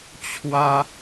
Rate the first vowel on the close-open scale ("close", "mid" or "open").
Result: open